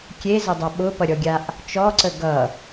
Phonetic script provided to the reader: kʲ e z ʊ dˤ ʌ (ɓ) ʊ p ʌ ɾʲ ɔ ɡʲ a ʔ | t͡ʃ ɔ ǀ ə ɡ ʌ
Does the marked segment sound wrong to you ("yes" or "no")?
no